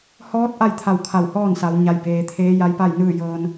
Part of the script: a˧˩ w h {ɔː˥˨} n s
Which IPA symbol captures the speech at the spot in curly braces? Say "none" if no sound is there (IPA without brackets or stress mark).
ɔː˥˨